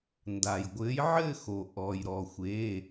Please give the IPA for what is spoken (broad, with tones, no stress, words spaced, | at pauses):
nda˩jɡʷɘː˨˥jʕɘː˥˧xo˩ ʔɔ˩j ɾɔ˩xʷe˩˧˩